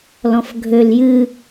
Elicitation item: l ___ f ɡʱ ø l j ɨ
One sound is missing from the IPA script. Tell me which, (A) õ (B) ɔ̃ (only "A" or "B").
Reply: B